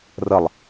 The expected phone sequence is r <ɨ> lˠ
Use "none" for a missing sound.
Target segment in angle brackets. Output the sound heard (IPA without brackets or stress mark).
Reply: ə